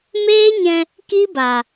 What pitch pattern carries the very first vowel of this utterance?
high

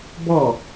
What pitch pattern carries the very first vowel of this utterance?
falling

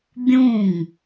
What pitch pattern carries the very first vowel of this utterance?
falling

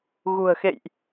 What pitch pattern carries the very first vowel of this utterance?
low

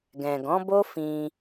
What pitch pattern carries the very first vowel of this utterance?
low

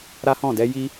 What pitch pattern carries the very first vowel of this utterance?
high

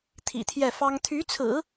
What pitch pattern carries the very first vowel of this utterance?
low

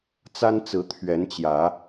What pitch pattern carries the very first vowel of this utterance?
high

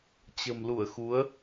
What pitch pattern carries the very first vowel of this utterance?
low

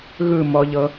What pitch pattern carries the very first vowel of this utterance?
falling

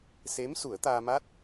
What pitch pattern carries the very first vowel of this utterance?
rising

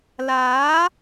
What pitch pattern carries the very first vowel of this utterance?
rising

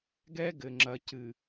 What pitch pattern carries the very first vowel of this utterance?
high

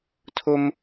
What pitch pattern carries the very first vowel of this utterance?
high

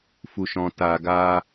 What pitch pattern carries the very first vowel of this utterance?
low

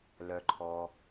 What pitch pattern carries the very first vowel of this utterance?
low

